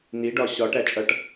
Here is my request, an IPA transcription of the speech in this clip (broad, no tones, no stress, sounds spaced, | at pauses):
n i ɖ ɒ ɕ ɒ ʈ æ t͡ʃʼ ʌ ʈ